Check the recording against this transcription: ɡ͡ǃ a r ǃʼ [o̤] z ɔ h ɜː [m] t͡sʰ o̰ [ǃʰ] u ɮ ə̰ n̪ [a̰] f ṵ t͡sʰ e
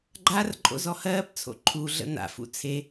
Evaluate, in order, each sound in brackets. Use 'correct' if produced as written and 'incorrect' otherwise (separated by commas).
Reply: incorrect, incorrect, correct, correct